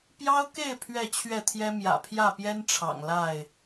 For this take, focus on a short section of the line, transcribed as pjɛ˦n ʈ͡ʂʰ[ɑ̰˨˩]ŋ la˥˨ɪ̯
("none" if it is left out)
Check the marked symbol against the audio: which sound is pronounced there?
ɑ̰˨˩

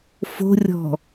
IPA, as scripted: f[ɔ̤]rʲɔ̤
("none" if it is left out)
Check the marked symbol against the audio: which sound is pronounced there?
o̤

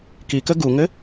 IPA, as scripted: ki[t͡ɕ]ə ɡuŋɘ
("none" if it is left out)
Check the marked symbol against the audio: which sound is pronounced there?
k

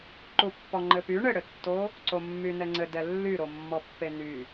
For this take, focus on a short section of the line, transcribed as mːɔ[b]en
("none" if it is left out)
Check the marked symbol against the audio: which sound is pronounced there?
pː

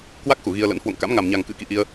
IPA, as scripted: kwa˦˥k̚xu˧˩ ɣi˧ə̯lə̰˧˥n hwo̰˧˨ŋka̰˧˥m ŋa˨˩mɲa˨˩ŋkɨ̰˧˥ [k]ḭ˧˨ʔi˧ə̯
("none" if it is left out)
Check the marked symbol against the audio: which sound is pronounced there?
k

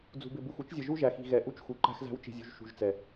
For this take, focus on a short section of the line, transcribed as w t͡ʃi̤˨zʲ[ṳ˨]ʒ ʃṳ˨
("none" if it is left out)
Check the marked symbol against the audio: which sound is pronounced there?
ṳ˨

